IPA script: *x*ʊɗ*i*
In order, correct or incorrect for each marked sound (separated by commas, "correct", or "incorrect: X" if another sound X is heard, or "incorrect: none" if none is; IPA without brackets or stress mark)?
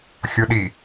incorrect: xʲ, correct